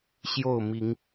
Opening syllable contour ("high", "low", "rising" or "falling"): falling